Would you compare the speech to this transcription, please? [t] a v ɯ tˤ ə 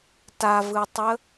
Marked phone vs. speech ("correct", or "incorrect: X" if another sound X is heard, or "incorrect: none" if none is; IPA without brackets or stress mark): correct